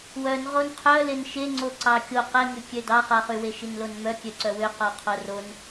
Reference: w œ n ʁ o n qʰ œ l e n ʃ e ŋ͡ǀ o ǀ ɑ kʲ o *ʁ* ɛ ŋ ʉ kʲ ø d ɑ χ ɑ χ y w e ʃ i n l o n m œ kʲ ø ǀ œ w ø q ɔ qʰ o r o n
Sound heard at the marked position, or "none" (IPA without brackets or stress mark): q